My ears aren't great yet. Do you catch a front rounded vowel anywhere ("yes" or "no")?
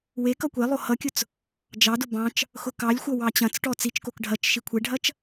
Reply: no